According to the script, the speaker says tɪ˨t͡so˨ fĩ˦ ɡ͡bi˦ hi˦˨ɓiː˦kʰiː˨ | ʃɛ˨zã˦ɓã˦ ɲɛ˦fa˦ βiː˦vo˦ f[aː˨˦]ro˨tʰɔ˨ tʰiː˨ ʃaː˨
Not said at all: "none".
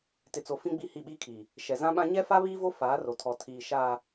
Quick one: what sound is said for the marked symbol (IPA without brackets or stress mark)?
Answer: aː˨˦